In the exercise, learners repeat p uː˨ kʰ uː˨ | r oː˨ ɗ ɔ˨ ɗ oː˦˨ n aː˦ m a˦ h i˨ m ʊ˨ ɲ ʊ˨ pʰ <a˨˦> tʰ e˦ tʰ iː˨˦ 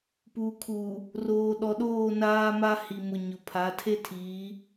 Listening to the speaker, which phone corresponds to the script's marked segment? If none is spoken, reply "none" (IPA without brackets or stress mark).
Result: a˨˦